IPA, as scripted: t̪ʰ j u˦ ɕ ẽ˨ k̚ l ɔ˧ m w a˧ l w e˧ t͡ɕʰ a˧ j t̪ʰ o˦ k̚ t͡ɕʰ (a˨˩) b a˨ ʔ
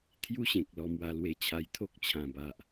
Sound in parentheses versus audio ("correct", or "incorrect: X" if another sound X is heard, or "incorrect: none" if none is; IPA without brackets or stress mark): incorrect: ã˨˩